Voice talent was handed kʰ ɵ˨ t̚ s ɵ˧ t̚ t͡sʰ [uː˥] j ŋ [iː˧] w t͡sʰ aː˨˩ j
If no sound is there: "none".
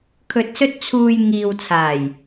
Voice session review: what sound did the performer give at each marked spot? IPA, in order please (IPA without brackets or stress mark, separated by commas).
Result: uː˨, iː˨